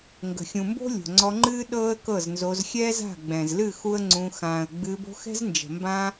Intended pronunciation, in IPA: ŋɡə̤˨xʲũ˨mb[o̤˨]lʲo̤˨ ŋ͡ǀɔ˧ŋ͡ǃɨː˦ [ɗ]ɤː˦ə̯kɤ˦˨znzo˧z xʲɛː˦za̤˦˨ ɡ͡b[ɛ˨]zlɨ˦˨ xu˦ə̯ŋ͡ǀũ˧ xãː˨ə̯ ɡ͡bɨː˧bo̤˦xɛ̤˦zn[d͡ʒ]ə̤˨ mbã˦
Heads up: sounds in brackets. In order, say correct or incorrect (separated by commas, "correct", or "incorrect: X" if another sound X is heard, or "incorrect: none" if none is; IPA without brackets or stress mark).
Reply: incorrect: o̤˦, correct, incorrect: ɛ̃˨, correct